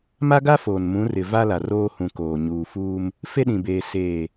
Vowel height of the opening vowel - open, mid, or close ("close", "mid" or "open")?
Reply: open